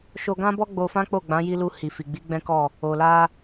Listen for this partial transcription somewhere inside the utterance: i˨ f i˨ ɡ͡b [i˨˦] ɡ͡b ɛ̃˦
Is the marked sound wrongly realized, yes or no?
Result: no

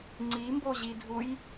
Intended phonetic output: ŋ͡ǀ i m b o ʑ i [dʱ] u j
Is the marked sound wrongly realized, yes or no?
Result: no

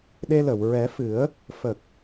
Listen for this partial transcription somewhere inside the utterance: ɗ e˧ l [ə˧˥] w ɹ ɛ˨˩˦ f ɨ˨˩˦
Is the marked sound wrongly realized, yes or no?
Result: yes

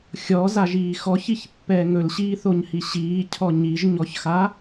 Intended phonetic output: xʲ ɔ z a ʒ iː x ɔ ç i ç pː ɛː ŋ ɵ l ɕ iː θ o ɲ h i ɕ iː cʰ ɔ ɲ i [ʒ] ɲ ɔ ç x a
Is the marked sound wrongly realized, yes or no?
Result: no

